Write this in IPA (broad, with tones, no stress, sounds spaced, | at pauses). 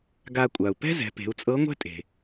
ɡ a˧ kʷʼ a˩ u̯ p ɛ̤˥ z ɛ̤˩˧ p e̤˩˧ u̯ t͡sʼ ɤ˧˥ ŋʷ ɛ̤˥ tʼ e̤˩